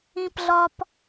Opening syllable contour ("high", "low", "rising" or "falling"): high